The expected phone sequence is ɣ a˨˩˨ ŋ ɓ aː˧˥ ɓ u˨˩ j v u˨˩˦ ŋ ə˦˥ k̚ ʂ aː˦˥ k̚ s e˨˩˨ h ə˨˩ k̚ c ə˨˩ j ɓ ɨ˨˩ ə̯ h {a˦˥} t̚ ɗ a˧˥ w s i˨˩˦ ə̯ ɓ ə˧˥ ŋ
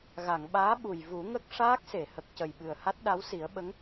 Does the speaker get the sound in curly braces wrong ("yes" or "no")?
no